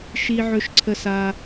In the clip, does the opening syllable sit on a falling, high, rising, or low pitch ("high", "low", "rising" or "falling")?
high